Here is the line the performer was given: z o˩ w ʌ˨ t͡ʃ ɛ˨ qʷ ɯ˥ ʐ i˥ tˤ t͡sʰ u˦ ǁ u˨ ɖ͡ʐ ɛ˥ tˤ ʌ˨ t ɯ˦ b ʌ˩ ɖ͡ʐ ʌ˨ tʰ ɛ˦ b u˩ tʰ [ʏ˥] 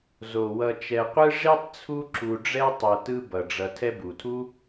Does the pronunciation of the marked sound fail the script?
yes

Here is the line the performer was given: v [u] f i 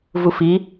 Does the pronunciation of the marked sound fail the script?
no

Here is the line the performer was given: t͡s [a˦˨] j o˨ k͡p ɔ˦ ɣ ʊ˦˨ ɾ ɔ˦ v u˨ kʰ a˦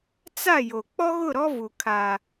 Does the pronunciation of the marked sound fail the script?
no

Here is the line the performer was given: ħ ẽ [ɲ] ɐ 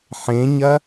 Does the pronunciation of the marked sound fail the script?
no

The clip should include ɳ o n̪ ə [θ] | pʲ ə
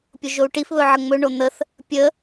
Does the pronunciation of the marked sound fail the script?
no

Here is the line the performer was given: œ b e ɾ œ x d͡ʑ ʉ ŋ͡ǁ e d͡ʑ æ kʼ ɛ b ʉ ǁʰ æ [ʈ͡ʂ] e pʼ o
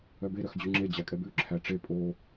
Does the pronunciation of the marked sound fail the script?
no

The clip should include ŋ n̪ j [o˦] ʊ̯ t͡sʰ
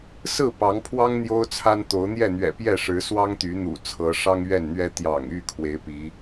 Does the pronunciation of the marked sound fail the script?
no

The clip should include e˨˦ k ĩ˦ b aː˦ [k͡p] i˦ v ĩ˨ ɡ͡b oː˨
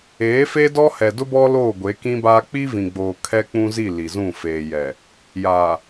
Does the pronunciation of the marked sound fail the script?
no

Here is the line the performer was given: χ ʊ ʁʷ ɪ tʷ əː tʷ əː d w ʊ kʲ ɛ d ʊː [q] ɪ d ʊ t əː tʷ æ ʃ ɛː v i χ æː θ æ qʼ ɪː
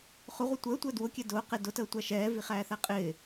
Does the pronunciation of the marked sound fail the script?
no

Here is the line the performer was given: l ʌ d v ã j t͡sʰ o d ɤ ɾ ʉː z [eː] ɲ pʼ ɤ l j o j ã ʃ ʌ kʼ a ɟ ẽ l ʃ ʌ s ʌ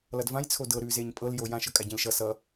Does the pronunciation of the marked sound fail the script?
no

